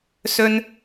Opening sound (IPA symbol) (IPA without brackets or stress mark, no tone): s